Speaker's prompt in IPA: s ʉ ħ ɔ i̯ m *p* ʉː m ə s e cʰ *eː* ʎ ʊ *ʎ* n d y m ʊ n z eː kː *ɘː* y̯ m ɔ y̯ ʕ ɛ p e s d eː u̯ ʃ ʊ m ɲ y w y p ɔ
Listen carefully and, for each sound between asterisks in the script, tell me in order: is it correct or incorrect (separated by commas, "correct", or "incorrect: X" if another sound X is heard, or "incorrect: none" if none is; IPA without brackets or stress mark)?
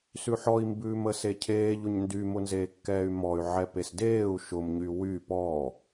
incorrect: b, correct, incorrect: ɲ, incorrect: ɛː